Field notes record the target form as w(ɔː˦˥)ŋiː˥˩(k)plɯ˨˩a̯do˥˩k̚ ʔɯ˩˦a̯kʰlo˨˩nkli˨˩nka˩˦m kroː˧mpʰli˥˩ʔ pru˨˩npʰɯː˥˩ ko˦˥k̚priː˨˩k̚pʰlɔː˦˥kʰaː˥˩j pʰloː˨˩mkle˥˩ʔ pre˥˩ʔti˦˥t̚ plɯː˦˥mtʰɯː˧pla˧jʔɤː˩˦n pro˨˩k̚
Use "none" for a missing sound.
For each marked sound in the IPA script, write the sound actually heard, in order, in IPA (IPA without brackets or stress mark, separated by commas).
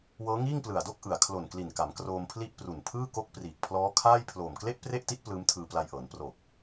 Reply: ɤː˦˥, ŋ